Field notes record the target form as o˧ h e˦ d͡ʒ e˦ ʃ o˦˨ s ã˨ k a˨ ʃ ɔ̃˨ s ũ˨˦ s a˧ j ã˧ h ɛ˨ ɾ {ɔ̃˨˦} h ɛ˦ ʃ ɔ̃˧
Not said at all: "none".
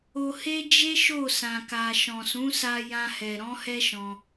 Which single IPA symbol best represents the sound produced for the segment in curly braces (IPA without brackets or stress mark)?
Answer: ɔ̃˨˦